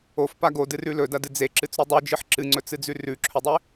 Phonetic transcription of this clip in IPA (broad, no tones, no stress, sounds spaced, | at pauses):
o f p a ɡ o d ɨ r ʉ l ɵ d ɐ d ɨ d͡z e ǁ ɨ t͡s ɾ u dˤ ʉ d͡ʒ ɨ ħ ǁ ɨ ŋ͡ǀ ɵ t͡s ɨ d͡z ʉ r ʉ ǁʰ ɵ dˤ e